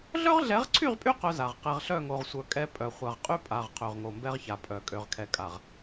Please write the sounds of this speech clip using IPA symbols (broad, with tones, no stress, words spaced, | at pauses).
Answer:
ɮœ˦ʁɮɛ˨˦ʁǀʰy˦˨ʁpʼy˦ qœ˦za˨ʁ qɛ˨ʁɬœ˦˨ŋo˨ʁsʷœ˨ kʼɛ˦pʼœ˨ χʷa˨ʁqʼy˦pʼa˨ʁ qʰø˨ʁŋo˨mbɛ˦ʁça˨ pʼœ˨ kʼø˨ʁkʰɛ˨kʼa˨ʁ